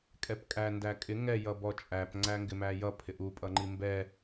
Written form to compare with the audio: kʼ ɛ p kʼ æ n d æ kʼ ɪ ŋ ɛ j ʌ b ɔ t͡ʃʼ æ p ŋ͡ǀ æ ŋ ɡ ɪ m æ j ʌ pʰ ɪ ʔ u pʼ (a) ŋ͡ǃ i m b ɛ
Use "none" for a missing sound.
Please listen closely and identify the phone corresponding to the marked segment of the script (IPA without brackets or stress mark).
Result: ʌ